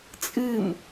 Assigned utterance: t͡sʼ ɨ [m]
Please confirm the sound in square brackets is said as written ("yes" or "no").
yes